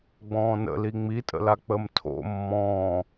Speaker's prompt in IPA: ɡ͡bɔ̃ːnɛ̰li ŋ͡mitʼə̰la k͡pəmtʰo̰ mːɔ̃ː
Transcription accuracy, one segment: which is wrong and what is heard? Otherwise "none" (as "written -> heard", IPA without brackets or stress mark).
ɛ̰ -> ə̰